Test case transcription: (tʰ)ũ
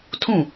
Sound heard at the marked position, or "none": tʰ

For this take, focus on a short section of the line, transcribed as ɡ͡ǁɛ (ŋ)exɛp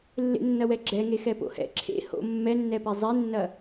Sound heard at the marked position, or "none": ŋ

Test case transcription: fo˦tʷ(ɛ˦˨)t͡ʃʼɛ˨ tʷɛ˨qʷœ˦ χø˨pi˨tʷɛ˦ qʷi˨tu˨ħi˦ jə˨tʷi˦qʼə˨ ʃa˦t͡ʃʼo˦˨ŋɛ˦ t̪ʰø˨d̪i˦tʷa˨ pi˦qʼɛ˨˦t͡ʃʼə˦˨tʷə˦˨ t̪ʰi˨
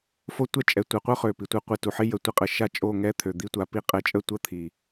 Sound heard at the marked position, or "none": ɛ˦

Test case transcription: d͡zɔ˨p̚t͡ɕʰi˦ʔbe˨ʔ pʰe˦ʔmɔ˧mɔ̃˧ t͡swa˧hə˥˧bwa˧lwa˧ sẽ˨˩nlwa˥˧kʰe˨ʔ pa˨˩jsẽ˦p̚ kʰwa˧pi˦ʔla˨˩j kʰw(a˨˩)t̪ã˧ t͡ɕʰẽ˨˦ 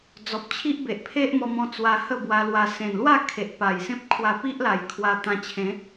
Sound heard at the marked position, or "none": a˧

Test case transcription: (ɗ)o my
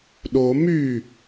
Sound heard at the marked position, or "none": ɗ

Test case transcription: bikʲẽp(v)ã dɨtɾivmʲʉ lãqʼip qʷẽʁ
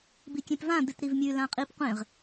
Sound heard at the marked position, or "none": v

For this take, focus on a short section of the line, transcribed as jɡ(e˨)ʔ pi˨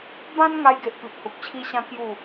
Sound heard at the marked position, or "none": e˨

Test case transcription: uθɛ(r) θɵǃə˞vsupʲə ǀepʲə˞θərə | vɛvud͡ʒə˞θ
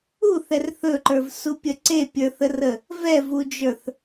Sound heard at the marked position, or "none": r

